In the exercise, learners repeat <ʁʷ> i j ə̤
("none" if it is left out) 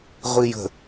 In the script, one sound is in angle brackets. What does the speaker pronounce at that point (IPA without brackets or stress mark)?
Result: ʁʷ